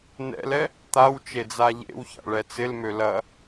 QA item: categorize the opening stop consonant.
plain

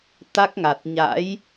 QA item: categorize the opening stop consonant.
plain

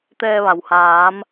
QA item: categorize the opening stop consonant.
plain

